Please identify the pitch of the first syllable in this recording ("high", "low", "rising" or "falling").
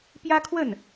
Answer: high